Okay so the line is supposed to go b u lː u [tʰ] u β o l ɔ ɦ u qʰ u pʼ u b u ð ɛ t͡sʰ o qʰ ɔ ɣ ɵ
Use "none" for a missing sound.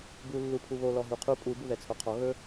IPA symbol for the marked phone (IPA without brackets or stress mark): pʰ